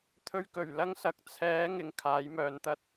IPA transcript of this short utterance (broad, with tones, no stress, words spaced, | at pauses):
t̪ʰɵ˧ɥkɵ˨˩ɥ lɐ˥ŋsɐ˨˥k̚ t͡sʰɛː˨˥ ŋɪ˨ŋkʰaː˨˥jmœː˨nt̪ɐ˥t̚